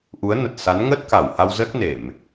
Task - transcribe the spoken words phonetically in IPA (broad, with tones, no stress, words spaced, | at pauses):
ʔu˨˦ə̯nə˨˩t̚ sa˨˦nŋə˦˥t̚ ka˧˩wha˧wzə˦˥t̚ ne˧˩˨m